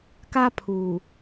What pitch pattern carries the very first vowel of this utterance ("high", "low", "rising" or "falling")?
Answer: high